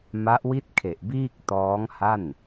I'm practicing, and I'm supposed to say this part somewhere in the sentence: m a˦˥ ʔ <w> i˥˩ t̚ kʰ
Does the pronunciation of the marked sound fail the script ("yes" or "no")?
no